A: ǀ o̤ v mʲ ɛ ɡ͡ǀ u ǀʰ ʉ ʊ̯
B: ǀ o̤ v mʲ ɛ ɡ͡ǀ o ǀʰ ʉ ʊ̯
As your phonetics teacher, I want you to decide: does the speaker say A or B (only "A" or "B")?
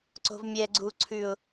A